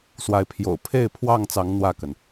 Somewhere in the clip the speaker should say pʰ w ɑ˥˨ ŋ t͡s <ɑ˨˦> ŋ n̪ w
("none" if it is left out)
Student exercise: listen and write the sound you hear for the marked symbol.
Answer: ɑ˨˦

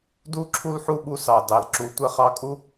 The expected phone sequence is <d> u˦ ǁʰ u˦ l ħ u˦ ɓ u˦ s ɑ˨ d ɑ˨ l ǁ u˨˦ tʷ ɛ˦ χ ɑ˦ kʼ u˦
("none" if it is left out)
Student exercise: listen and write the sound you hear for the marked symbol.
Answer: d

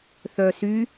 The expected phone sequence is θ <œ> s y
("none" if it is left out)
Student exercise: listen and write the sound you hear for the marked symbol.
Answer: œ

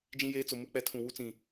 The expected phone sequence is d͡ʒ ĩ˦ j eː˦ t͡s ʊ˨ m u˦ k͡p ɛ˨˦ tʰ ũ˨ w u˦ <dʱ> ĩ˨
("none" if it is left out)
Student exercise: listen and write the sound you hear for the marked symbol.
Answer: t͡s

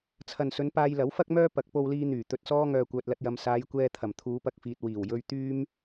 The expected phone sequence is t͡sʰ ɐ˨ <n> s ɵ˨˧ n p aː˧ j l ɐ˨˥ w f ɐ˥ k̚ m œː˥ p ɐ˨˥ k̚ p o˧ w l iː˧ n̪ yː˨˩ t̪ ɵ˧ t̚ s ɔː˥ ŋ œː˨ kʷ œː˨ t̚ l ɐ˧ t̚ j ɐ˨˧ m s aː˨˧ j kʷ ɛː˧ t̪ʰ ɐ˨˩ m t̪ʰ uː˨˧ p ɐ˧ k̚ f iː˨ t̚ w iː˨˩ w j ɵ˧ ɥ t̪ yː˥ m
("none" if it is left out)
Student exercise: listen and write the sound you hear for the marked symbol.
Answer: n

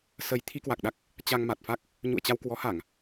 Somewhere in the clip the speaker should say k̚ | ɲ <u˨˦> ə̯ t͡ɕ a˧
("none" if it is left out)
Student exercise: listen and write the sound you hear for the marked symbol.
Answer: ṵ˧˨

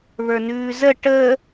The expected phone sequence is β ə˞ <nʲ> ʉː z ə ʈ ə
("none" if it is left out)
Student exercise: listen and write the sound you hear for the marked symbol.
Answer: n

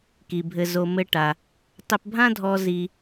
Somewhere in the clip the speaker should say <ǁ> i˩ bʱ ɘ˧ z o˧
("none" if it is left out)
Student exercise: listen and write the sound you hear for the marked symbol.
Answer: k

